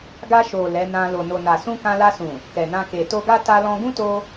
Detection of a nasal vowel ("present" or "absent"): present